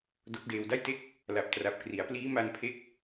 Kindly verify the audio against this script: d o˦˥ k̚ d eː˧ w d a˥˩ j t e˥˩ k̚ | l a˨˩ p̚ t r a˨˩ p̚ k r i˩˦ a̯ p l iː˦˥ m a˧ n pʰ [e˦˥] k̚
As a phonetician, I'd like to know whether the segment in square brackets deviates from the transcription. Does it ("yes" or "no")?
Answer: no